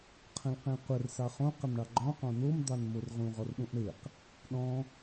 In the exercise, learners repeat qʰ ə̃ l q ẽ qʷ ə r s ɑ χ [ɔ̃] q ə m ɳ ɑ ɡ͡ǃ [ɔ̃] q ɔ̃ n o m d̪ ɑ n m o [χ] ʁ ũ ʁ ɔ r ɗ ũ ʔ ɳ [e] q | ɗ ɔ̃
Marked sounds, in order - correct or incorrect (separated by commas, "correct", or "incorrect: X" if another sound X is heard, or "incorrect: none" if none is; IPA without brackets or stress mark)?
incorrect: õ, correct, incorrect: r, correct